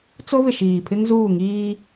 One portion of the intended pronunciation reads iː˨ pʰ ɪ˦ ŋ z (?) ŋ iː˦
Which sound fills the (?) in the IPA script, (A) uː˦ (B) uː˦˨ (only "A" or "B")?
B